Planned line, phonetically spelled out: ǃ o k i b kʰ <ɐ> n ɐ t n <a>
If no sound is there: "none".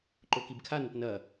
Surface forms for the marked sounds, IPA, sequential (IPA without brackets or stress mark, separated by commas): a, ɐ